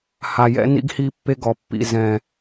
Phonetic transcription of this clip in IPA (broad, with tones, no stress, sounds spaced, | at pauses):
h a˨ j ɛ̰˦ n ḭ˦ ɡ h i˦ pː e˦ ɡ ɔ˨ pː ḭ˨ z ɛ̃˨